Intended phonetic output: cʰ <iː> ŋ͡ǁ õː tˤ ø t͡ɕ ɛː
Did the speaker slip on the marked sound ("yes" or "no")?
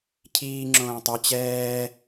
no